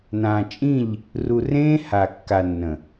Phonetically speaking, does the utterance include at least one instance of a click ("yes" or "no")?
no